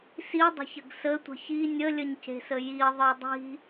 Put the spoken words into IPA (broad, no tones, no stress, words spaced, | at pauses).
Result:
sidˤə̤çəɡ sətʷə̤ çi nʲəlʲəɲce̤sə jiðˤɯ dˤi̤